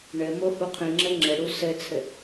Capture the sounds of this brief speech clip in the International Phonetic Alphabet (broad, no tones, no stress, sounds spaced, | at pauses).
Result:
ɳ ɘ m o h u qʰ ĩ ŋ͡ǁ ɘ ŋ͡ǁ ɘ ɽ u s ɘ t͡sʰ ɘ